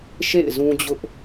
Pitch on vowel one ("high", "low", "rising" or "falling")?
falling